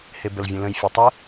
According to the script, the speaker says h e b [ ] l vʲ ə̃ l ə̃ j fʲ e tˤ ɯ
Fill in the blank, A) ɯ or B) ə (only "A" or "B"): B